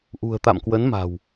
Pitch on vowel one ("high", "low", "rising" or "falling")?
low